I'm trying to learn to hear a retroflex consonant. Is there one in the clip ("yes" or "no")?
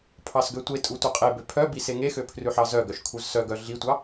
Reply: no